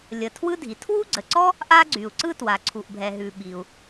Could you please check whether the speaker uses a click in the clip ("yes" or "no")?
yes